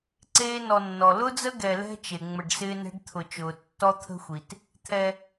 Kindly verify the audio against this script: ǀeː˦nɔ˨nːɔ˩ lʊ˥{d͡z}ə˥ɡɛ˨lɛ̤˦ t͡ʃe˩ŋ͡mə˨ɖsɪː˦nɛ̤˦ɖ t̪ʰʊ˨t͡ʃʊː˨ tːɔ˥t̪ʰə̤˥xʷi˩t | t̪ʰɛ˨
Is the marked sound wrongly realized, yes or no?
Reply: no